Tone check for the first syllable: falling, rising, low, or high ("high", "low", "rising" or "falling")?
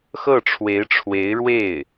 falling